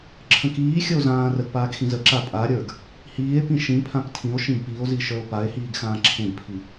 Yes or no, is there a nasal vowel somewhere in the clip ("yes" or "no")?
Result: yes